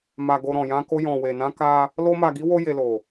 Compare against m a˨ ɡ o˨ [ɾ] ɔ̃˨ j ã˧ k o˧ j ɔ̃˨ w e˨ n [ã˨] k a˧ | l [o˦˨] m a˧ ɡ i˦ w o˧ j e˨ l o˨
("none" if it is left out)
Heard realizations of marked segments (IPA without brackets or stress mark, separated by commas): ɾ, ã˧, o˦